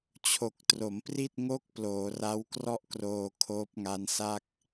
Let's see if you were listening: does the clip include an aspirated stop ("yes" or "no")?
yes